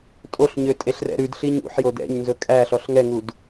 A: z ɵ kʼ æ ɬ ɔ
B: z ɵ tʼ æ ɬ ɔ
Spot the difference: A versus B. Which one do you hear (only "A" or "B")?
A